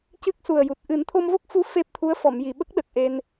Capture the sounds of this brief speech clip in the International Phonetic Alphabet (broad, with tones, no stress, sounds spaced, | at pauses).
c ɨ˦˥ k̚ s u˨˩ ə̯ j u˨˩ t̚ ʔ ɨ˨˩˦ n t̪ʰ o˧ m v o˦˥ k̚ f u˧˥ f e˦˥ p̚ t̪ʰ u˧˥ ə̯ f ɔ˨˩˨ m j i˨˩˨ ɓ ə˦˥ k̚ ɗ ə˨˩ k̚ ʔ e˧ n